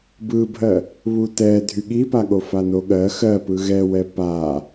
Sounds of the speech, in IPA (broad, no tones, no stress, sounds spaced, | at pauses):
b ɯ bʱ ɜ | β u t ɛ dʱ y ɠ i p a ɠ o f a n o ɠ ɜ x ɜ p ɯ ɣ ɛ w ɛ p a